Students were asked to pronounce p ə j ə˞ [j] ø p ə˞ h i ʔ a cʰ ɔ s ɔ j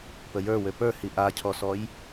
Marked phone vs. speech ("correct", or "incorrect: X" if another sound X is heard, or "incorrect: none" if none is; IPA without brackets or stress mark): incorrect: w